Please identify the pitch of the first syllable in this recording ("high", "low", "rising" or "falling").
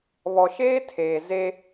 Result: low